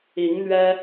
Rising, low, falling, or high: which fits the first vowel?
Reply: rising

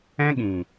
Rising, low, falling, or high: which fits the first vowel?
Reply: high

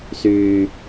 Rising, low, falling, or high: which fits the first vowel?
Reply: low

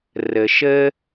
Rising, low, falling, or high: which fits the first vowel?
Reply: low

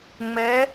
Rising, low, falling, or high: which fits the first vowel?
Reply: rising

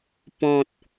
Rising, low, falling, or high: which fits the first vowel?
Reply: low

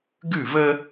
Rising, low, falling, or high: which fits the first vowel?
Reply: falling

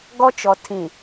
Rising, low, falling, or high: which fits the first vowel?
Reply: high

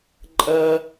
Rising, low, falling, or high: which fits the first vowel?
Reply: high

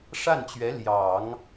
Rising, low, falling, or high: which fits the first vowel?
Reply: falling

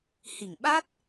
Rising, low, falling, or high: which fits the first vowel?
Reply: low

